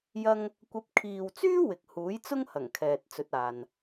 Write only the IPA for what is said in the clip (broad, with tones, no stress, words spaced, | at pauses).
jɐ˥ŋ | kʷɐ˨˥p̚kʰiː˨wt͡syː˥ wɪ˨k̚huː˨˥jt͡sʊ˥ŋhɐ˨˩ŋ kʰɛː˨t̚t͡sɵ˨˥t̚aː˨n